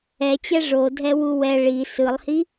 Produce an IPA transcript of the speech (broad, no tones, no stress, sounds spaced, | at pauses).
ɛ t͡ɕ ɛ ʐ o dʱ ɛ w u w ɛ ɭ i s ɯ lˠ h i